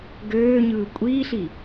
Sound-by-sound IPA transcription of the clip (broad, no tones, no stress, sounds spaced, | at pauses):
ɡ øː ɲ ɯː kʷʼ iː ɬ i